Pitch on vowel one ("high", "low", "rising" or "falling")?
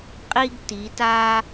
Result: high